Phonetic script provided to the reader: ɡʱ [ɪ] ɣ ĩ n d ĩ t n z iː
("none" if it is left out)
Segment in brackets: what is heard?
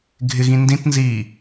ɪ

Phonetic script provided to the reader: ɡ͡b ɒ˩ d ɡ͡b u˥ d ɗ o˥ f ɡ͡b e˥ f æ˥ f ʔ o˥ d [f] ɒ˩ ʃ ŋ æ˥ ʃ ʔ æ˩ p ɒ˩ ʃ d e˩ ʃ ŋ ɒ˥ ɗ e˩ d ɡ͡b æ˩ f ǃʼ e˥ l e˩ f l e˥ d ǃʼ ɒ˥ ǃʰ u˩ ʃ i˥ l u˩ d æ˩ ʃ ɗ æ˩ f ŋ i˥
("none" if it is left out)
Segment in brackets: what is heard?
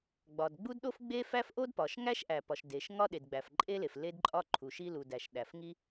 p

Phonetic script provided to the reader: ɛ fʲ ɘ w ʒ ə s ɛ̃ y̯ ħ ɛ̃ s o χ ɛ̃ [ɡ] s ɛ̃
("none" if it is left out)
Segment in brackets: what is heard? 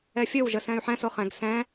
ɡ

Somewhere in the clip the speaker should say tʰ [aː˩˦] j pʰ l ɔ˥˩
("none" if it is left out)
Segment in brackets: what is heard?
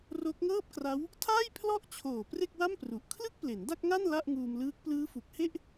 aː˥˩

